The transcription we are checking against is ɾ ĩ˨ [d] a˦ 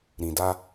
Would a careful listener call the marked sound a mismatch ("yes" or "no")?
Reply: no